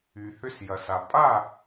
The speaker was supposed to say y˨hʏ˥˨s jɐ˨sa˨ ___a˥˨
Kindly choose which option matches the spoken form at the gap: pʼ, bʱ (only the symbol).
pʼ